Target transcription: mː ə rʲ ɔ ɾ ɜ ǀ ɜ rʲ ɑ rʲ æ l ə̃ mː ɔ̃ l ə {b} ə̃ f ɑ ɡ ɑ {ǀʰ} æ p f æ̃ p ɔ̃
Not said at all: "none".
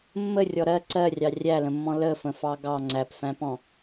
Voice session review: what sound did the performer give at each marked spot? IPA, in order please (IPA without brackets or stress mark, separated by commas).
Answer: f, ŋ͡ǀ